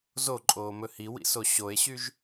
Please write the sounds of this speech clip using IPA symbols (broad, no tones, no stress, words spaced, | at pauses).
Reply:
zoǃʼoːmɵ hiwḭso ɕoe̯ɕyʒ